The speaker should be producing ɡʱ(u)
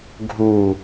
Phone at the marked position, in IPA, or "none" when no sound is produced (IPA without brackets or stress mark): u